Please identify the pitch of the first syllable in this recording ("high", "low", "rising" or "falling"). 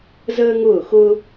high